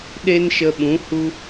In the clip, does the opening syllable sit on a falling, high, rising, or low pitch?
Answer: high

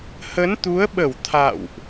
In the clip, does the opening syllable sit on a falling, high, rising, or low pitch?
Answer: rising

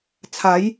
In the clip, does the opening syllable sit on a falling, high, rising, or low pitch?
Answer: rising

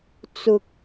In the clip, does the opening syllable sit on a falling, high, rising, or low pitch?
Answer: low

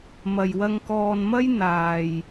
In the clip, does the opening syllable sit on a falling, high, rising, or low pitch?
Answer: low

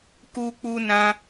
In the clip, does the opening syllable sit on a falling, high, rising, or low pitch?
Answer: high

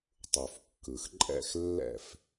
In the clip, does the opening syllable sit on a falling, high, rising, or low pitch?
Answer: low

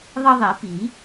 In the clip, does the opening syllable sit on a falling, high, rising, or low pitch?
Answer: high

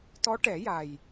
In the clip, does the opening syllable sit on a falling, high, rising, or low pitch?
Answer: rising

